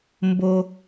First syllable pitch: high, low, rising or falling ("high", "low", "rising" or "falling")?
low